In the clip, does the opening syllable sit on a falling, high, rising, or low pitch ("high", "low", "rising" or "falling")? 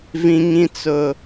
high